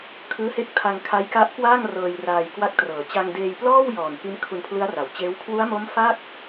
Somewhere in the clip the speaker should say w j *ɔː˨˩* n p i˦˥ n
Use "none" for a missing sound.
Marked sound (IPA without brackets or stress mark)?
ɔː˨˩